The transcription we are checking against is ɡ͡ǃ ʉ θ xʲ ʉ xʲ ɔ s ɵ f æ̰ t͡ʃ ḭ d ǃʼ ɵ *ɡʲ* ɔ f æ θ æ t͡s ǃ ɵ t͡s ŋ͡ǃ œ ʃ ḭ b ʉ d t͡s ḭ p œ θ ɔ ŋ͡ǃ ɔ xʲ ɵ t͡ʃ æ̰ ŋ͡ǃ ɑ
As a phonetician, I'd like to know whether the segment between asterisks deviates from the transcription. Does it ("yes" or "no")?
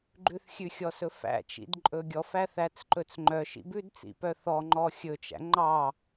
no